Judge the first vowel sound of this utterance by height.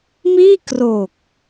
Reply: high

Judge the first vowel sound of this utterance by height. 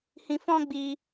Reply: high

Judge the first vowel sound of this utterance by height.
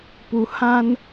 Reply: high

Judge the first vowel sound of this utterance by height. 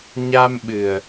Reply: low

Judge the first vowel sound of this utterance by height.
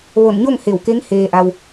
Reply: mid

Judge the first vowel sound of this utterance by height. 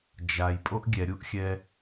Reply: low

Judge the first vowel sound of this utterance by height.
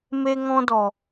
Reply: mid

